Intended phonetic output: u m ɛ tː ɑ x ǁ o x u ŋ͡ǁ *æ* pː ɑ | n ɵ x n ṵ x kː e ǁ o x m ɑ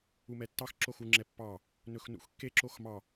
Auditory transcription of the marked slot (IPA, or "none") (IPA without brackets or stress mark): ɛ